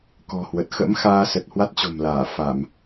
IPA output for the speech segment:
kɔ̤˨˩hwə˨˩t̚ xə̰˧˥m xaː˧sə˨˩t̚ hwa˦˥t̚t͡ɕo̤˨˩mlaː˧˩ fa˧˩˨m

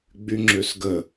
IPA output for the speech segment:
ɡ͡byŋ͡ǁøsɡə

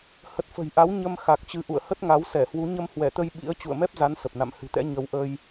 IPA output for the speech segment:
hə˨˩t̚fə̤˨˩jʔa˨˦w ɲə˧m xa˨˩k̚t͡ɕɨ˨˦ʔṵ˧˨ə̯ hə˦˥t̚ŋa˨˦wsɛ˧˩hwu˨˦ ɲə˧mhwɛ˧˩t̪ə˧j ɓḭ˧˥ə̯ t͡ɕṵ˧˨ə̯mɛ˦˥p̚za˨˦n sə˨˩p̚na̰˧˨mhɨ̤˨˩t̪ɛ̰˧˥ ɲə˧w ʔə˧j

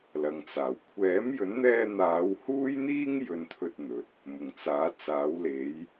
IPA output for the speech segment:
lɐ˨ŋt͡saː˨˩w kʷʰɛː˨˥mjɵ˨˥nn̪ɛː˧ n̪aː˨˧whuː˥jn̪iː˥ŋ jɵ˥nt̪ʰɵ˥t̚n̪ɵ˨t̚ | mʊ˨˩ŋt͡saː˨˥ t͡saː˨˥wle˨˥j

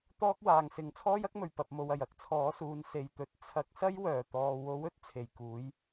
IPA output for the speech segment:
t̪ɔː˥k̚waː˨ŋsɪ˨˥ŋ t͡sʰɔː˥jɐ˥k̚mɵ˨˩ɥ pɐ˨p̚mo˨wɐ˨˩j ɐ˨˥k̚t͡sʰɔː˨˥suː˨˧n se˨jt̪ɵ˨˥t̚ t͡sʰɐ˨˥k̚sɐ˥j wœː˨˩t̪ɔː˨ wo˨˥w ɵ˨˥t̚ t͡sʰe˨˩j kuː˨˥j

